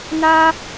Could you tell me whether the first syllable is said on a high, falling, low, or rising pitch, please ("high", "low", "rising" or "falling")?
high